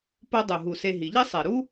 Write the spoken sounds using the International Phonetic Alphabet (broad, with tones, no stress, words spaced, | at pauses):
po˧dˤu˨ɦu˨ se˧ɦi˨ ʎi˦sˤe˨ɾu˦